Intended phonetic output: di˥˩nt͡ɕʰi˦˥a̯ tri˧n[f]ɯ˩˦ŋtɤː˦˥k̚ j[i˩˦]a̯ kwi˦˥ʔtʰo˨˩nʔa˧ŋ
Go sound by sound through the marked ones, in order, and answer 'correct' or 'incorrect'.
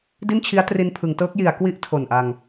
incorrect, correct

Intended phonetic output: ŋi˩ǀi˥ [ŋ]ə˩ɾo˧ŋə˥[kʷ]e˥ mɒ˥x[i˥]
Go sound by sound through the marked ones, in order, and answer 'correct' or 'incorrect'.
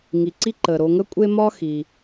incorrect, incorrect, incorrect

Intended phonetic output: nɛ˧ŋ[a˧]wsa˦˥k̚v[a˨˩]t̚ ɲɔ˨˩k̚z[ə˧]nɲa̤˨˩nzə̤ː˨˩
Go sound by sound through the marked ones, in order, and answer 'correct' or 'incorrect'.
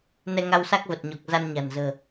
correct, incorrect, incorrect

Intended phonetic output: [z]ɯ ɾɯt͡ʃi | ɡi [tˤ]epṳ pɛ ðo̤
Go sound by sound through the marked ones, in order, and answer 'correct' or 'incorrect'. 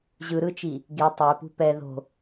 incorrect, correct

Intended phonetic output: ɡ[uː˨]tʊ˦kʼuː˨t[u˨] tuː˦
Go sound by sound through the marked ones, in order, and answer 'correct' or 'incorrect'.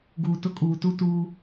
correct, incorrect

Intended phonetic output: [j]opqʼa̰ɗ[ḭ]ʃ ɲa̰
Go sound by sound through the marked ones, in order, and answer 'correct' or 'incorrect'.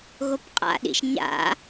incorrect, correct

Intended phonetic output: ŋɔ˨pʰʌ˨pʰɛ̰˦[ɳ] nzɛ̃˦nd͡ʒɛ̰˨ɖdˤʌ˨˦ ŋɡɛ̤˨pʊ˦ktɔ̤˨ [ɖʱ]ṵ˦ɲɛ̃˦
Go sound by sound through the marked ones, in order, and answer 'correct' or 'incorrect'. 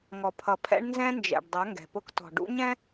correct, incorrect

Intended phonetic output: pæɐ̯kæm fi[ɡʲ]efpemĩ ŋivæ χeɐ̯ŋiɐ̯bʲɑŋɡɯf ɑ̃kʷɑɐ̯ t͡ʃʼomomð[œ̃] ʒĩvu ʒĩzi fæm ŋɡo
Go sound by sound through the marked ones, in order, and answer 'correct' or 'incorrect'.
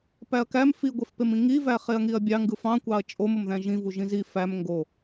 incorrect, incorrect

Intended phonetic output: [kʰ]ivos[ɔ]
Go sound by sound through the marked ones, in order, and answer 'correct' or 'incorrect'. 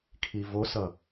correct, incorrect

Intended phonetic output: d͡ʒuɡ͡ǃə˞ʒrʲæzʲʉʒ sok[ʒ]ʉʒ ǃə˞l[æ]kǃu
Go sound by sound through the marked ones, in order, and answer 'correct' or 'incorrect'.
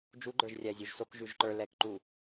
correct, incorrect

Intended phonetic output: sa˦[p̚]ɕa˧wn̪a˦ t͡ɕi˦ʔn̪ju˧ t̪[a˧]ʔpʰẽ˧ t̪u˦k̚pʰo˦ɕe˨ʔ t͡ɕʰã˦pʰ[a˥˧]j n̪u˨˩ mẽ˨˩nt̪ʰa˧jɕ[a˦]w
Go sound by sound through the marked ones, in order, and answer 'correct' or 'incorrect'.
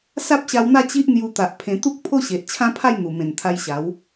correct, incorrect, correct, incorrect

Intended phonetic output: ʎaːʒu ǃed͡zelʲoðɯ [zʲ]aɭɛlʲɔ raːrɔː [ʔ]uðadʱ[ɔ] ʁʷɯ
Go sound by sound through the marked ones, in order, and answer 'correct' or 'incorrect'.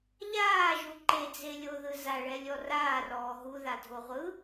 incorrect, incorrect, incorrect

